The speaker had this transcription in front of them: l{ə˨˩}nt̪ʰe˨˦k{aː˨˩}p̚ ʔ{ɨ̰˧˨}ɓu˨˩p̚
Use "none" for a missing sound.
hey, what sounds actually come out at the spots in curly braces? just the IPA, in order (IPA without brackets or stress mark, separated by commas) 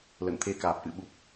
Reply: ə̰˧˨, aː˨˩, ɨ̰˧˨